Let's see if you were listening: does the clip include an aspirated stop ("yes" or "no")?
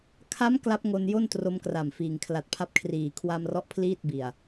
yes